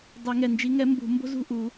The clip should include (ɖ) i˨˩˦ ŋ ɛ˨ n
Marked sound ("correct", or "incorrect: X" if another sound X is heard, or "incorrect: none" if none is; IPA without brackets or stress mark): incorrect: dˤ